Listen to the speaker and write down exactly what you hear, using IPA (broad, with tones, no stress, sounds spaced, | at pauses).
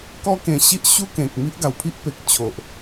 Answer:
k ɔ˦ k ẽ˧ ɕ i˦ ʔ ɕ u˦ k ẽ˨ k̚ m i˦ ʔ ɡ a˨˩ w pʰ i˦ ʔ p e˨ k̚ t͡ɕʰ o˨ ʔ